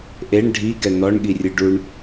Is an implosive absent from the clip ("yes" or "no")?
no